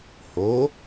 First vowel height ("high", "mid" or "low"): mid